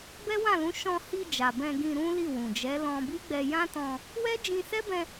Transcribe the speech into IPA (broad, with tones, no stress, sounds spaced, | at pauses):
b ɛ˦ w ã˦˨ l ũ˨˦ ʃ ɔ̃˧ h i˧ d͡ʒ a˨ b ɛ̃˧ ɡ ĩ˧ ɾ ũ˦ l i˦˨ w ũ˨ d͡ʒ ɛ˨˦ l ɔ̃˧ b i˦ ɡ͡b ɛ˧ j ã˦ t ɔ̃˧ | w ɛ˦ d͡ʒ ĩ˧ s ɛ˦ b ɛ̃˧